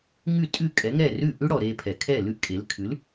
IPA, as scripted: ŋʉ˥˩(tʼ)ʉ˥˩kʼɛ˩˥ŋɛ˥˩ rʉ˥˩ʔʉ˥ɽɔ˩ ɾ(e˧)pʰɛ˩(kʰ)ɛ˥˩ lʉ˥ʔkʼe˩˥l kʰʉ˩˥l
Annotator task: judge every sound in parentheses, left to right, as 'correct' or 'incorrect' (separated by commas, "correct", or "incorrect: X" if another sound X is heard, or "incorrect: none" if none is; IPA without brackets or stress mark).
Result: correct, correct, correct